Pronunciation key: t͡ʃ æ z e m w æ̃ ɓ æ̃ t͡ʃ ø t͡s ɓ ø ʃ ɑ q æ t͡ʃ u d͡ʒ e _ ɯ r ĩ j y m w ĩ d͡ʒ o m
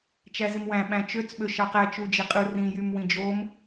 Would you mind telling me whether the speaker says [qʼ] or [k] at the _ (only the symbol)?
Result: qʼ